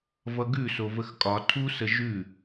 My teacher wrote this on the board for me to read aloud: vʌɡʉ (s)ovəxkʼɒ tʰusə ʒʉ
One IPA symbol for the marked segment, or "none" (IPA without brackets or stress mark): s